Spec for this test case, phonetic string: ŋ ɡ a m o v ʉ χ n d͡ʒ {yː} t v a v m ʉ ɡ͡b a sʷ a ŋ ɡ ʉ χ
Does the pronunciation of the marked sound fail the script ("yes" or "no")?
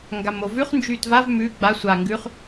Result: no